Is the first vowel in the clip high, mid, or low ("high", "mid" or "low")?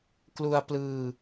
high